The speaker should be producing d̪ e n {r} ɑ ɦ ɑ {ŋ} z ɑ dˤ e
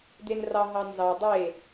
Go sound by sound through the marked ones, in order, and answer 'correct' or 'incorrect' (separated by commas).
correct, incorrect